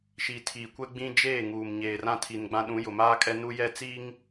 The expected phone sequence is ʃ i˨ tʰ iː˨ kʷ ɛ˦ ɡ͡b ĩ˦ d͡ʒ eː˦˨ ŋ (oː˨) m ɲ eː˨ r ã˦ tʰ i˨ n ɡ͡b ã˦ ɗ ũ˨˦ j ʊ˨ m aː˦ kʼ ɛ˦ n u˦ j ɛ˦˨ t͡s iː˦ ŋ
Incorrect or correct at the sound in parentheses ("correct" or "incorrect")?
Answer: incorrect